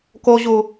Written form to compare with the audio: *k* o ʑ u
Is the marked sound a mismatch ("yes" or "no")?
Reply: no